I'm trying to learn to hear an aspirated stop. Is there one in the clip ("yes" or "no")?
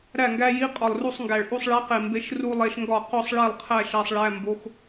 yes